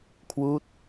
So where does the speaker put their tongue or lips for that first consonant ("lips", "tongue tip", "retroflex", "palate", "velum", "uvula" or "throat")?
velum